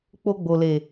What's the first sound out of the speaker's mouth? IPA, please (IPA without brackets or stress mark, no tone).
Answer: k͡p